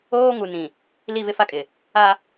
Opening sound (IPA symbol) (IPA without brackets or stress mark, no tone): oː